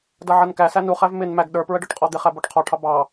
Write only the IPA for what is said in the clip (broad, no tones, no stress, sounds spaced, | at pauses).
d ʌ ʕ ʌ n k æ s æ n u χ æ v m ɪ n m æ ɡ ɗ ə˞ p ɹ ə ɖ ɔ ʈ qʼ ɔ d̪ ɪ χ æ b ɔ ʈ qʰ ɔ ʈʰ ɑ b ɑ